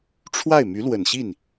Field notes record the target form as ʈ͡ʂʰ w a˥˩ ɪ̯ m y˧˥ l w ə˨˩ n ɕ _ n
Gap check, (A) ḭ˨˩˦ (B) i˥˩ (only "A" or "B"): B